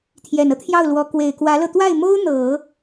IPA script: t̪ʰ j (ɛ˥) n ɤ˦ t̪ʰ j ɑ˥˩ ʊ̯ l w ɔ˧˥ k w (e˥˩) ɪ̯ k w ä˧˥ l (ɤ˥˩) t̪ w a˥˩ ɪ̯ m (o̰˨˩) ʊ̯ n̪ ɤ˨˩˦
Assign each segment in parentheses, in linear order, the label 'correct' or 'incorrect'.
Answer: incorrect, incorrect, incorrect, incorrect

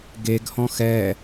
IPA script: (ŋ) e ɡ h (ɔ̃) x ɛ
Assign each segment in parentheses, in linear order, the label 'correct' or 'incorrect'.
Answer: incorrect, correct

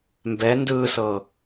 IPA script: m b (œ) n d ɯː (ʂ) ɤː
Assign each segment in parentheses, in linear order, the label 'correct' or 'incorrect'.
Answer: incorrect, incorrect

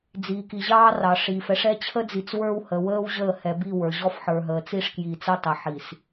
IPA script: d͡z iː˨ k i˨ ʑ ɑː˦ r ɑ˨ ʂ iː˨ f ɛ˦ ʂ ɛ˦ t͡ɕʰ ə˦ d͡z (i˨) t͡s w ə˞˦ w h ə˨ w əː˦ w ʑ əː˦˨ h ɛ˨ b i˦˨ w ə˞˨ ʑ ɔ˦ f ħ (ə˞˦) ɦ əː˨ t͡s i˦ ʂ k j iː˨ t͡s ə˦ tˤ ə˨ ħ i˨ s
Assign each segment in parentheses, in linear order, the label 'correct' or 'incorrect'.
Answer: correct, incorrect

